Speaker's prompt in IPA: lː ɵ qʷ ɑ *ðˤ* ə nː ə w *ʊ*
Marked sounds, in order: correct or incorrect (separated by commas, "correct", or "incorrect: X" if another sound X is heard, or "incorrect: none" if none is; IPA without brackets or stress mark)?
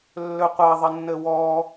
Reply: correct, incorrect: ɔ